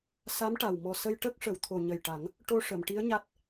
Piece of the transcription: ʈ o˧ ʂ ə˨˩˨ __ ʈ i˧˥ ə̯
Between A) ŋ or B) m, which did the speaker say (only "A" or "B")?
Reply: B